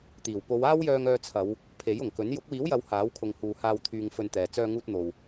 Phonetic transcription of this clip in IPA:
t̪iː˨˩w po˨˧waː˥wjœː˧ŋ œː˧t͡sʰɐ˨˧w | pʰe˨˥jʊ˨˩ŋkɵ˨˥n jʊ˨˥k̚wiː˨˥wjɐ˨˧w haː˨˥wkʰʊ˨ŋhuː˨haː˧w t̪ʰyː˧ŋfɵ˧nt̪ɛː˨ t͡sœː˧ŋuː˧t̚n̪o˨w

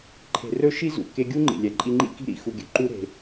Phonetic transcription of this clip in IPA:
ǃʰe̤˨rɵ˧ ʃi˦zṵ˨ ke˧ɡʲu˦ŋ͡ǃḭ˨lʲɛ˨ ǃʼi˧ŋ͡ǃḭ˦ki̤˦ ɾḭ˧xu˧ɡʲɵ˨ ǃu˦ ɾe̤˧

